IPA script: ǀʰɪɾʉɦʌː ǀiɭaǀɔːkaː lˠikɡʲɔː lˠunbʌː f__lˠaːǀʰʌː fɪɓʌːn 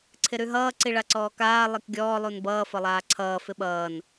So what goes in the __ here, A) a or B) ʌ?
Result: B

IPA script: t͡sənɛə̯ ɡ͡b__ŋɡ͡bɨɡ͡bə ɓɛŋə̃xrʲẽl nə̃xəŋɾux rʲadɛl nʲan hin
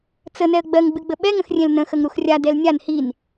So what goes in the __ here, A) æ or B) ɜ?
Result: B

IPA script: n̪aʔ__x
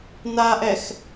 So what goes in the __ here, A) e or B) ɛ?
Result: B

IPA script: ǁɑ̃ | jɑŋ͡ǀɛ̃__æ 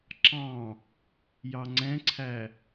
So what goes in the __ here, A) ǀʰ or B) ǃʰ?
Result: A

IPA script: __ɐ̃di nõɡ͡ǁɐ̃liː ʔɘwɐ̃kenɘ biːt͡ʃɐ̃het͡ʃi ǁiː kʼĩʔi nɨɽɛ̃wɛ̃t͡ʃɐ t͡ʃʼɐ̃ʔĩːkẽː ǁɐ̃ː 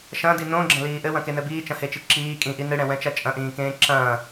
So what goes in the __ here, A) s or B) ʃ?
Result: B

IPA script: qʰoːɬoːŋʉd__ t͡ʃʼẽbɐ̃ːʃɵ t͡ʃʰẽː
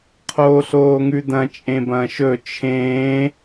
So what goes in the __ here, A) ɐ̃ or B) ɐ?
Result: A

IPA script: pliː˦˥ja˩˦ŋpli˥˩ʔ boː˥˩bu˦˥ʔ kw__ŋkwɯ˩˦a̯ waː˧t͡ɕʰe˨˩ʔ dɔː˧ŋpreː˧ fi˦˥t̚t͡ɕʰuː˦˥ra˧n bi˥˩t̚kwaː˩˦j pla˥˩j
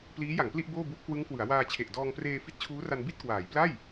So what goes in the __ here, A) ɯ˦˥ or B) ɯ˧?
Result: A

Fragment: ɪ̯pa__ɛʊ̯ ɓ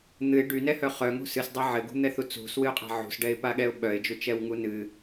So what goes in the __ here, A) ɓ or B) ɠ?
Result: B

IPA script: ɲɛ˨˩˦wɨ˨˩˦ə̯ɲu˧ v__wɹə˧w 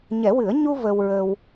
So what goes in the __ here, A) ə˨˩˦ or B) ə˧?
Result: B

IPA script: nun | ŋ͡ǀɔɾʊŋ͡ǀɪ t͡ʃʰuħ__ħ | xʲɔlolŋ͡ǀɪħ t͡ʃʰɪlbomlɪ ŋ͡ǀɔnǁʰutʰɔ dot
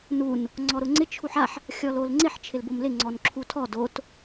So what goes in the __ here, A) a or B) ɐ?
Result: A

